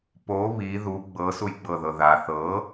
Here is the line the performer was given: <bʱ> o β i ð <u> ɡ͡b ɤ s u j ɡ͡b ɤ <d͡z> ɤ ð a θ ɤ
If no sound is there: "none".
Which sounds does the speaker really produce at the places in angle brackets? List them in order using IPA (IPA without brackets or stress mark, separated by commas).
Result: p, u, ð